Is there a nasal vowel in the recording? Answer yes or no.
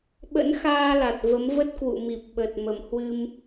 no